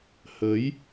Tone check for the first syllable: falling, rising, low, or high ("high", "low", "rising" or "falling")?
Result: rising